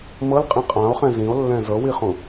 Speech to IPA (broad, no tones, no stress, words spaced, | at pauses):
mɤlqʼĩ qʼão̯χɛ̃ zĩo̯lːɛ̃ zɤwiχũ